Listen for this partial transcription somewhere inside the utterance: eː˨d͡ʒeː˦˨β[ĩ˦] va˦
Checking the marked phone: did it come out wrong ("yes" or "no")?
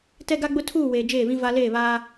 no